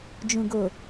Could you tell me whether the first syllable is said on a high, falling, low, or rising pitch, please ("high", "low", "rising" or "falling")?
low